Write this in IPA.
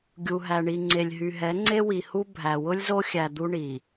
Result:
ɡʲu˨ɦæ˨ɳi˨ ŋ͡ǀe˨lʲɦy˨ɦɛ˨˦ ŋ͡ǀe˦wi˨hu˦ bʱæ˨wʊ˦lʲ zo˦xʲæ˨ d̪u˦ɳi˨

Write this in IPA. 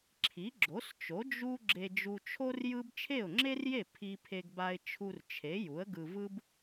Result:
ǁʰi˩˥ɡ͡ǁo˩˥st͡ʃo˩˥ d͡ʒu˥ ɡ͡ǁe˧d͡ʒu˧t͡ʃʰo˥r jɯ˥b t͡ʃʰe˥˩ʊ̯ŋ͡ǁe˥rje˥˩ pʰi˧pʰe˧ɡba˧ɪ̯ t͡ʃʰu˧rt͡ʃʰe˩˥ ju˩˥ə̯ɡɯ˧ vɯ˥b

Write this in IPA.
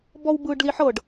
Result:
bɔwbɯːɖliħɤɖ

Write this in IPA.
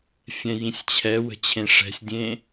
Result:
fʲɛ̃jĩsʲt͡ɕʰɛwə̤ t͡ɕʰẽʂɛ̤sʲdʲẽ

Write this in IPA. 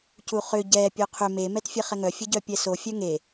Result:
cuχʏ ɟɛ pʲoqʰʏ me mɛtfʲeχɛŋœ fʲəɟœpʲɛso fʲœŋe

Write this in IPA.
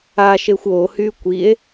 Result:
aʃexʷ ohy kʷie̯

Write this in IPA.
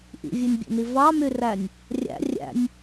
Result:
ʔḭvʲenʲbʲḛni vɑmyrænʲ | rʲæ̰ rʲæ̰nʲ

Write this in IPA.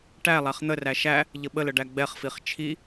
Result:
ʈæ lˠæχn̪əræ ʃæ | ʎəɓələ ɖæɡ͡bɛχfiχ t͡ʃʰi

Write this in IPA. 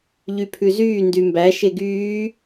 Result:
ʎypʰʉzyː ndymbæ ʃeɡyː

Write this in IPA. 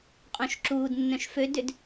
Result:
qʼõʃǁuːdnːœ̃ʃ fødʏd

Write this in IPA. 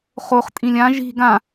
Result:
χoχ tʼĩlʲã ʒi̤ ɡã

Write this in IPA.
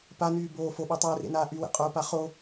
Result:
panyː boː foɓy tˤɵːrḛnaː ʔywḛqʼoːpa χo

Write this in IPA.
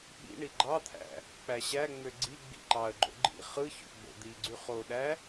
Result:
ɓḭ ɳiɡ͡ǃɑt̪ʰæ̰ | k͡pæɕæŋ͡mø ɡ͡ǀi ɡ͡bḭǃɑə̯ɡ͡ǃo̰ ɡ͡ǃḭ χɯço̰ ɡ͡bo̰d̪iɡ͡ǀy χoɗæ

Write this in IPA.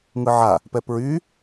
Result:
ŋɯʕa | pɛpɹy

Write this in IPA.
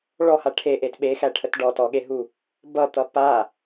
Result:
ɭɔha ʈʰeʔet ɓexæʈʰət ɖɔtɔɠeɦu | bʌt̪ʌ pa

